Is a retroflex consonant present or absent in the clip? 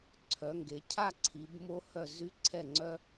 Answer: absent